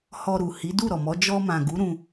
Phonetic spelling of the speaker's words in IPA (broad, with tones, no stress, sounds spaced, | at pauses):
h ɔ˧ ɾ u˨ h i˨˦ d u˦˨ ɾ ɔ˨ m ɔ˨˦ d͡ʒ ɔ˧ m ã˨ ɡ u˨˦ ɾ ũ˧